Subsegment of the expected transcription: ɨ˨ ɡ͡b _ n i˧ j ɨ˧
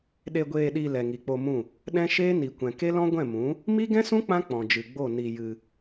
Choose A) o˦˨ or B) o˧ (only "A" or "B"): A